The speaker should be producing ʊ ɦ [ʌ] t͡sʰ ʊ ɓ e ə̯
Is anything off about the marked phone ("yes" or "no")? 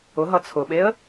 no